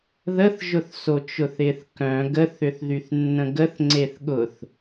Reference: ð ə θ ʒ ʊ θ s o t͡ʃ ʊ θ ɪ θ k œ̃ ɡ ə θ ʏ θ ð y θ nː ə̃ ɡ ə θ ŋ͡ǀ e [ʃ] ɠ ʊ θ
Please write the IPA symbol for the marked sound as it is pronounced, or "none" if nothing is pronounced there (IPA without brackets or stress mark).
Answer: θ